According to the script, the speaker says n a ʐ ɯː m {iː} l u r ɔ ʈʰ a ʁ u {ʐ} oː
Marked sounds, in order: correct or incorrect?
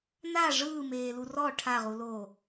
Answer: incorrect, incorrect

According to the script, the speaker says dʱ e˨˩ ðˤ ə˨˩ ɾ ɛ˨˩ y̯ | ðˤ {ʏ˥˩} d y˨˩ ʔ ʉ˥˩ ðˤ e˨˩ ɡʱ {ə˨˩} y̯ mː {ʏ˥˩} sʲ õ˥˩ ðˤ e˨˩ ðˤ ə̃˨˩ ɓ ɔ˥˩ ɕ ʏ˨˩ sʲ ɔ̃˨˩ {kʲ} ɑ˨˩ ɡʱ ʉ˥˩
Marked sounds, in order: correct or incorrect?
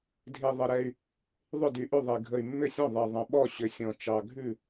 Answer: correct, correct, correct, incorrect

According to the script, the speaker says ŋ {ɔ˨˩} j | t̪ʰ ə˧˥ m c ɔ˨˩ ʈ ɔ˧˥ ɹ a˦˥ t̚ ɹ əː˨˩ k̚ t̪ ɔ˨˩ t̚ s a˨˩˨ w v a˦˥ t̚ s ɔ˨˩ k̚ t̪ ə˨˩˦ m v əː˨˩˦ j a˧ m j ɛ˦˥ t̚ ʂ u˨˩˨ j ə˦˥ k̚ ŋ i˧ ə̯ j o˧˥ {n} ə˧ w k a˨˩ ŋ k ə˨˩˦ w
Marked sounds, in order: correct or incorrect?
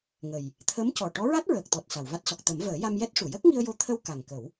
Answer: incorrect, incorrect

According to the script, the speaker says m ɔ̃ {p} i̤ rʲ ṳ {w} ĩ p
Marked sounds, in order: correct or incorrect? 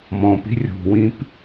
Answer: correct, correct

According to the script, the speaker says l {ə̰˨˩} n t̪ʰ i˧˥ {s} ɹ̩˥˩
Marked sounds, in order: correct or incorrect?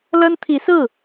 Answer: incorrect, correct

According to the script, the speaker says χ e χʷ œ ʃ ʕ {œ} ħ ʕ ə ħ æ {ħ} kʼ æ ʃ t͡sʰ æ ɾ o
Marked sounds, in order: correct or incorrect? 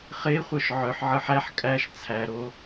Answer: correct, correct

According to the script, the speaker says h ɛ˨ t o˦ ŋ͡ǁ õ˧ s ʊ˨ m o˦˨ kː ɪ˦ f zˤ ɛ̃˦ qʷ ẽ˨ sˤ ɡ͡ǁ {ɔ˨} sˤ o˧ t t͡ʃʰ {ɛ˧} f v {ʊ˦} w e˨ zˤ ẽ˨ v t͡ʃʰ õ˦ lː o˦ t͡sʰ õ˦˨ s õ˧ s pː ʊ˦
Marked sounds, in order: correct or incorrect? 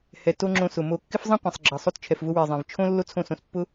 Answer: incorrect, incorrect, incorrect

